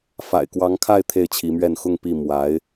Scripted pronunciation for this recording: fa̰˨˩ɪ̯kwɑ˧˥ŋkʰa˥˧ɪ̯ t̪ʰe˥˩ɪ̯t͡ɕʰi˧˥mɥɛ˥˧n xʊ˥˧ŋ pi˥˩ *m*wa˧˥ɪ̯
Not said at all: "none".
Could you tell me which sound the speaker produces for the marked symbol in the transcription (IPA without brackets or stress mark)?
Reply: m